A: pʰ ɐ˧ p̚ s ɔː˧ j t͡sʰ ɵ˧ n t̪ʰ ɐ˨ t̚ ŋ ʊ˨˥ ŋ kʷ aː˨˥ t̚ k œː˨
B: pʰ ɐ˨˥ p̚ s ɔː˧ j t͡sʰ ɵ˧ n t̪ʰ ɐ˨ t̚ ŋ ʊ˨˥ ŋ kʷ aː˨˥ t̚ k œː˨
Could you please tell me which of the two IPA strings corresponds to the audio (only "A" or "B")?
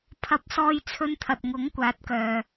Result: A